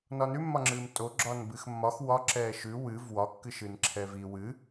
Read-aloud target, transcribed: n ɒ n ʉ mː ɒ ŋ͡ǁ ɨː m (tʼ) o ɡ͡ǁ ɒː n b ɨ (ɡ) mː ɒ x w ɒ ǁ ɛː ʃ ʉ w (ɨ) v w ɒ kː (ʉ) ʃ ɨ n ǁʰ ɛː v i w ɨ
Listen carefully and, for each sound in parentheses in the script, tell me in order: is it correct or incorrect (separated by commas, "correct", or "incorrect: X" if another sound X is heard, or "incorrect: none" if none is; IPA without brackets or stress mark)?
correct, incorrect: x, correct, incorrect: ɨ